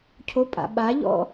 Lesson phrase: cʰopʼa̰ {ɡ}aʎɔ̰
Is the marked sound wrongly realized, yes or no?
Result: yes